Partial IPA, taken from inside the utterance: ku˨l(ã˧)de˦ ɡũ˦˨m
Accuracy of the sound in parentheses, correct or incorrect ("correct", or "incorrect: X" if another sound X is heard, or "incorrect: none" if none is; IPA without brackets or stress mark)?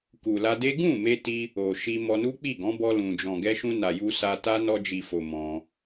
incorrect: a˧